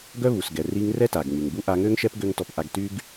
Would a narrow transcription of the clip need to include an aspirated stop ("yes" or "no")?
no